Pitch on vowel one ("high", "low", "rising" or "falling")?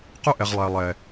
high